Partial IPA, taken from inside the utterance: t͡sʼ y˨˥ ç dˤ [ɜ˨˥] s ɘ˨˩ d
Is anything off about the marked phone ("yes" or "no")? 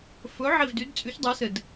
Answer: no